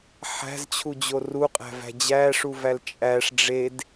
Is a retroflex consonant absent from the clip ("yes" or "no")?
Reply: no